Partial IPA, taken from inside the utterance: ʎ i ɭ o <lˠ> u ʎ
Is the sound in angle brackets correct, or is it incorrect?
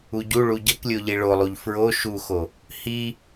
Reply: correct